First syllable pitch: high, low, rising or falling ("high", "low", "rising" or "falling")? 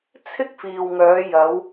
high